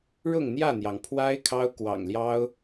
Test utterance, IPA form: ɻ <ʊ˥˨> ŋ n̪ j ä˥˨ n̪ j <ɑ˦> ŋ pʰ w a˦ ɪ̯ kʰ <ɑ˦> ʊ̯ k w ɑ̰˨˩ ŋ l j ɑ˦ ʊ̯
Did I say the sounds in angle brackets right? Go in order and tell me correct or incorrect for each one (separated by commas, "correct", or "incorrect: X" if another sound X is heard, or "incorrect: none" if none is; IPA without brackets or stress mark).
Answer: correct, incorrect: ɑ˩, correct